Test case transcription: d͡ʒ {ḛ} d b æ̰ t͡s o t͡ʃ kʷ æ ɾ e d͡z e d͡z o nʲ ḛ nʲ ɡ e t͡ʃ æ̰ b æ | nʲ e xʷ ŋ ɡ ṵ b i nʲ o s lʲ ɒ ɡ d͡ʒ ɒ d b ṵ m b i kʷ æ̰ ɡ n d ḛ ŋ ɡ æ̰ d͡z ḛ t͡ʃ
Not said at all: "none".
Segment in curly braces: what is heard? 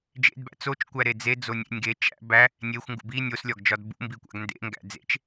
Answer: ḛ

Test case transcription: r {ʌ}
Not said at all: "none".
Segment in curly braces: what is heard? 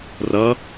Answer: ʌ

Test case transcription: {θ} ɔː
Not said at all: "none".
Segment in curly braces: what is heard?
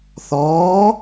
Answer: θ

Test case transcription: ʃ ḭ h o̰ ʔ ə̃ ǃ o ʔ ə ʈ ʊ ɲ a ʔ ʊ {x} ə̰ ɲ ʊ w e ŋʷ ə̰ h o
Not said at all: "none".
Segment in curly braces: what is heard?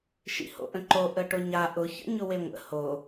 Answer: ç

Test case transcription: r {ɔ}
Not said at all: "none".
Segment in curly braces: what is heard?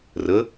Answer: ə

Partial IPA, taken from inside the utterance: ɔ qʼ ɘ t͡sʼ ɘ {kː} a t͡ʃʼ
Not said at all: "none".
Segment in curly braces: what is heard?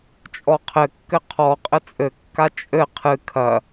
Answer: kː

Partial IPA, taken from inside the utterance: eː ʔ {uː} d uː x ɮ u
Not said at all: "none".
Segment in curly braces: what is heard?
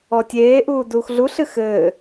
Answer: uː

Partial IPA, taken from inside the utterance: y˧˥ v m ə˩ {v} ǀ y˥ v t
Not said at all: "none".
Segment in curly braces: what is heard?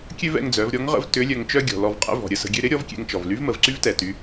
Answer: v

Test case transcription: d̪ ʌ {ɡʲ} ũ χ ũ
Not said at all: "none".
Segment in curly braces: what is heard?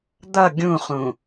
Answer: ɡʲ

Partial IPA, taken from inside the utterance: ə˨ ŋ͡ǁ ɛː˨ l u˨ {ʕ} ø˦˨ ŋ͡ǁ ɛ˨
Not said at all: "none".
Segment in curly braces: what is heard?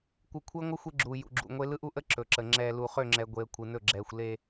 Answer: χ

